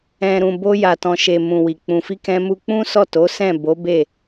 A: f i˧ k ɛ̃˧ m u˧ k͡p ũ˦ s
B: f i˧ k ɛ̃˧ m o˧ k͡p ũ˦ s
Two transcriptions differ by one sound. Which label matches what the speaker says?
A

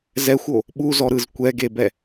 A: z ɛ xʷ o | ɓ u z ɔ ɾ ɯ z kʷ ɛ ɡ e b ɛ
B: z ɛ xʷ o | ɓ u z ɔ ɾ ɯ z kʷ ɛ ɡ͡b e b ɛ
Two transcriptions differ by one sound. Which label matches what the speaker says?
A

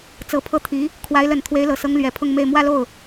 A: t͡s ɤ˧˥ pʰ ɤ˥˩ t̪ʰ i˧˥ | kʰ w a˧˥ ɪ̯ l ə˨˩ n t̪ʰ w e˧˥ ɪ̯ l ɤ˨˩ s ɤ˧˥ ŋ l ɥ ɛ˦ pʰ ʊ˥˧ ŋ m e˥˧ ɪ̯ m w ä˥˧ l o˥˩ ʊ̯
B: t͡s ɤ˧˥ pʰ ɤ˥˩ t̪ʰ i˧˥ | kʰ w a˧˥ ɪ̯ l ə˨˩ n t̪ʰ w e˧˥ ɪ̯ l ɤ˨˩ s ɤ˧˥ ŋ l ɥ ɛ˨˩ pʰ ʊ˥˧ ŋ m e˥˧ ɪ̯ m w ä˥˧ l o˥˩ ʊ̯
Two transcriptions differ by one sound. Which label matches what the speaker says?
B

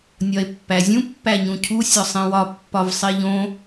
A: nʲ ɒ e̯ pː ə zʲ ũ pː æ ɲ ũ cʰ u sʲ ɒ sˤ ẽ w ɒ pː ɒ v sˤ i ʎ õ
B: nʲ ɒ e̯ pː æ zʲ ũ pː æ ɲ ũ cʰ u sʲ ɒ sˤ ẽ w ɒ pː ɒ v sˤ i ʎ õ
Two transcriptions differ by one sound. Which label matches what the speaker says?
B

